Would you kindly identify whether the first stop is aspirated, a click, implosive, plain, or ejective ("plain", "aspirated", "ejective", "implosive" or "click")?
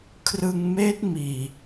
aspirated